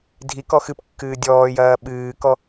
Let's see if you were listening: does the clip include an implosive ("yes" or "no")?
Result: yes